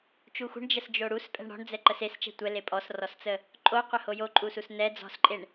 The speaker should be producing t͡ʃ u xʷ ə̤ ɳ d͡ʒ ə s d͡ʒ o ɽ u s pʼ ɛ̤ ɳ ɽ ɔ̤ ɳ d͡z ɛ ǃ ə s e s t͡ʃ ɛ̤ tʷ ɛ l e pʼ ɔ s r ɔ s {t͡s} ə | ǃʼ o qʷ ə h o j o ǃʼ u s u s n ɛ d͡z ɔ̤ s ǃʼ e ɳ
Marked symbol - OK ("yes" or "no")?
yes